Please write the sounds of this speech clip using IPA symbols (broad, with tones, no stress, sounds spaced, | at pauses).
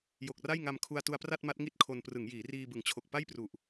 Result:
j o˨˩ k̚ r a˥˩ j ŋ a˧ m kʰ u˧ a̯ t u˧ a̯ p r a˥˩ t̚ m a˦˥ t̚ ŋ i˥˩ t̚ kʰ o˧ n p r ɯ˩˦ ŋ j iː˩˦ r iː˧ b ɯ˩˦ ŋ t͡ɕʰ o˨˩ k̚ p a˥˩ j p r u˨˩ ʔ